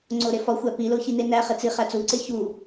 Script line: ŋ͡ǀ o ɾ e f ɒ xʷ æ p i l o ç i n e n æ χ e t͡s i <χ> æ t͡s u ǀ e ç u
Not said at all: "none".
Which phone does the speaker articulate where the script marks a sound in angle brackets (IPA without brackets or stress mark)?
χ